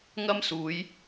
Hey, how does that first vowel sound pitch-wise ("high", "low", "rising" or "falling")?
high